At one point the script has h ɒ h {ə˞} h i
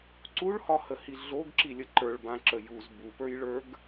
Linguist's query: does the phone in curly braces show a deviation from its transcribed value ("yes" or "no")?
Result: yes